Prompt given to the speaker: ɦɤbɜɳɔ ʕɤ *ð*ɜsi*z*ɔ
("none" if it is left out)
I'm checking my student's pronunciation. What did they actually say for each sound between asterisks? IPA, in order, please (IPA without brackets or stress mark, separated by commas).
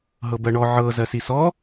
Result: z, s